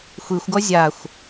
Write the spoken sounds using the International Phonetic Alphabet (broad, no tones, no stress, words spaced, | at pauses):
xʷixʷɡɔ zʲaxʷ